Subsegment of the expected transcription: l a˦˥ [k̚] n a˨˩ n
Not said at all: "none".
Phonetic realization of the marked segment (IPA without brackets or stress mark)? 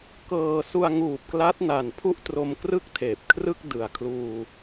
t̚